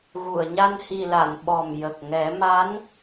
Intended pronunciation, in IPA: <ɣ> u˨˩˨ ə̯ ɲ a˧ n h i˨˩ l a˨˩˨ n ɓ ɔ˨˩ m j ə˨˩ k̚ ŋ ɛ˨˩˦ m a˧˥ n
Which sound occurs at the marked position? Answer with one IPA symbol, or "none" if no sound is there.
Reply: ɣ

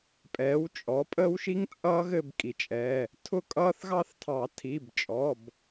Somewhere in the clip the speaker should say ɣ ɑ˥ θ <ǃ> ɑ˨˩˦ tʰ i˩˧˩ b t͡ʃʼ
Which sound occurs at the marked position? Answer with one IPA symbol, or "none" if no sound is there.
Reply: tʰ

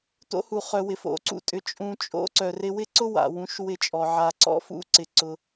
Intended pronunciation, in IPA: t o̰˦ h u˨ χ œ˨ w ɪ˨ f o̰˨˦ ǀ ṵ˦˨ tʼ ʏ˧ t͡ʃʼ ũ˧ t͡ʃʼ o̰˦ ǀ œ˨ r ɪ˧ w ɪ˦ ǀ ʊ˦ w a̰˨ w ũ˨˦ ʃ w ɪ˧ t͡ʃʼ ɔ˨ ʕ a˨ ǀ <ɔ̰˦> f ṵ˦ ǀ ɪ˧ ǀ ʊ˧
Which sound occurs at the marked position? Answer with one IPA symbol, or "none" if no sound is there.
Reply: ɔ̰˦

